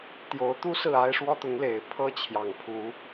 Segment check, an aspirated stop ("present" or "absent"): present